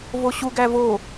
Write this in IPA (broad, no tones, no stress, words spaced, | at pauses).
voɕu ɡævo